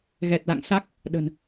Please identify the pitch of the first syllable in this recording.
low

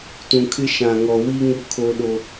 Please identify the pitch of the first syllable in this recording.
low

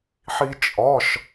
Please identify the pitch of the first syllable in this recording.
high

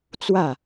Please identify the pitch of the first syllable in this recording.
falling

